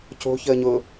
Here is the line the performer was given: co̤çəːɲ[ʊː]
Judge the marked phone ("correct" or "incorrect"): correct